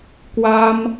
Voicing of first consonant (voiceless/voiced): voiceless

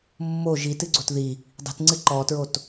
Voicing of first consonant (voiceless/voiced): voiced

